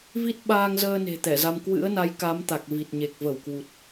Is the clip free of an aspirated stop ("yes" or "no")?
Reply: yes